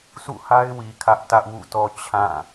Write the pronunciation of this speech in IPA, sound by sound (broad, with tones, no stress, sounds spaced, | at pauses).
sʰ ṵ˦˨ h a˦ ɪ̯ w i˨ kʰ ä˦ ʔ t ä˦ ʔ w ṵ˦˨ t ɔ˦ t͡ɕʰ ã˦˨